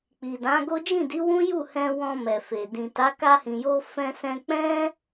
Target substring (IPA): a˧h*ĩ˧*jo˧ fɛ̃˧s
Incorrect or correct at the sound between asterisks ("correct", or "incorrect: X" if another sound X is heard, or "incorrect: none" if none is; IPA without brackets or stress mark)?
incorrect: ĩ˨